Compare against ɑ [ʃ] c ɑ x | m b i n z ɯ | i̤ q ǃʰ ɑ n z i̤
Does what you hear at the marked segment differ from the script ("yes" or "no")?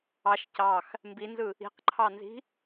no